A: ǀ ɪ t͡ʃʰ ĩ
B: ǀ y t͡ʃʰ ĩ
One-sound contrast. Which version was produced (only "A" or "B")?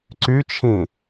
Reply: B